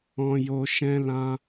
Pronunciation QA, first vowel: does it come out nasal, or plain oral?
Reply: nasal